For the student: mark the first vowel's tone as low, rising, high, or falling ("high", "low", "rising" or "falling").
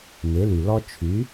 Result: rising